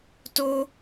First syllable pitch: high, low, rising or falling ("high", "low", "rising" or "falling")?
high